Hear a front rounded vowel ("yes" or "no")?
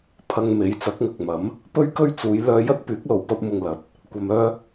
yes